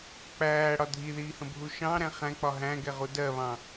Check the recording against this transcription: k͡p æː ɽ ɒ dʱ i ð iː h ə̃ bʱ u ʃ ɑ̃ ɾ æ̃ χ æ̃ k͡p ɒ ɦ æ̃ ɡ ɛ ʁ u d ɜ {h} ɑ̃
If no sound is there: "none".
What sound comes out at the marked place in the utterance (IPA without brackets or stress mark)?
β